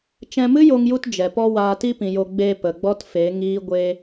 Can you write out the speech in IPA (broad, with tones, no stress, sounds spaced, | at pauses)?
t͡ʃ ɛ̃˧ m ɨ˦ j o˧ ŋ j u˧ t d͡ʒ ɛ˨ p ɔ˦ w aː˧ t i˦ p ĩ˨ j o˧ ɡ͡b e˧ p ə˨ ɡ͡b ɔ˦ t f e˨˦ ŋ iː˦ ɡʷ e˦